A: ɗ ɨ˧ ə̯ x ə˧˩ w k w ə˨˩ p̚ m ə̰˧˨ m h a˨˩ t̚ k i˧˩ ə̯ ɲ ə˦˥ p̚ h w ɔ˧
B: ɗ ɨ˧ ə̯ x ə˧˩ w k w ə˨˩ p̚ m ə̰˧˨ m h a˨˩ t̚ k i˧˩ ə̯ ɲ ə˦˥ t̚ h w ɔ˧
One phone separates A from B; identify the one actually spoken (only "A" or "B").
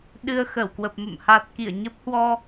A